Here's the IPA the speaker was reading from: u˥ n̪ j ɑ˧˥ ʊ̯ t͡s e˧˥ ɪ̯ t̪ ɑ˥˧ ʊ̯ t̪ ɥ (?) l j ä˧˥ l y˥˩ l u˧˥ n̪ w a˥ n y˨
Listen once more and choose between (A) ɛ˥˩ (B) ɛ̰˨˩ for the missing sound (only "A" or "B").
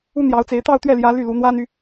A